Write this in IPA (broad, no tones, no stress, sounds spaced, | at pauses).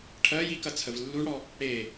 ʈʰ ɜ j i k ɐ t͡sʰ ə v lː u ɳ ɽ ɔ | ɽ e